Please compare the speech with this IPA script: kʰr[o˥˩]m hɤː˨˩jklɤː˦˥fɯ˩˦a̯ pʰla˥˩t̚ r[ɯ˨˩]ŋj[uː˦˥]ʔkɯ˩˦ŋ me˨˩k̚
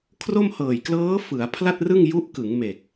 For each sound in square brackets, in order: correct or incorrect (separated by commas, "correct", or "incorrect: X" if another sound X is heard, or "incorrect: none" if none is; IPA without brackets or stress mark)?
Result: correct, incorrect: ɯ˥˩, incorrect: u˦˥